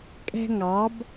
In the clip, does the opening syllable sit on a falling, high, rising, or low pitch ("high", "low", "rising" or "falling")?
high